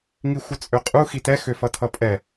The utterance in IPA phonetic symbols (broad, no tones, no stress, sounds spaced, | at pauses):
ŋ i xʷ ə t͡sʼ ø qʼ u x i t ɛ x ø f ʌ tʰ ʌ pʼ ɛ